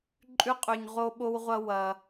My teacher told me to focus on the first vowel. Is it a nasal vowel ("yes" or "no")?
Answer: no